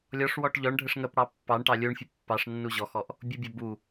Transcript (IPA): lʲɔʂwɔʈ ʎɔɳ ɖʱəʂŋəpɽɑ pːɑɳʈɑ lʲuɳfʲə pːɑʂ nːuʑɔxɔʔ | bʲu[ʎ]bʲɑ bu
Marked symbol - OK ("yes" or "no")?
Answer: no